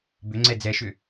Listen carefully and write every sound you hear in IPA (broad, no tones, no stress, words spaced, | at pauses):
bʏŋ͡ǀɛ d͡zɛʃʏ